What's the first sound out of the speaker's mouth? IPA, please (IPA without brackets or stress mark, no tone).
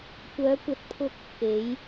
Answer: kʷ